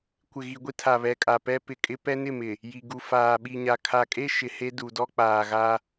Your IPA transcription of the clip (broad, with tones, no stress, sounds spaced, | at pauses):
kʷ ɪ˨ ɣ i˨ ɡʷ i˦ tʰ a˨ β ɛ˨ kʼ a˨ p ɛ˦ p ɪ˨ kʼ ɪ˦ p ɛ˦ n ɪ˦˨ m ɪ˨ | j i˨ ɡ u˨ f aː˨ ɓ i˨ ɲ a˨ kʰ a˨ kʼ e˦ ʃ ɪ˨ h e˦ d u˨ d ɔ˦ k͡p aː˨ ɣ a˦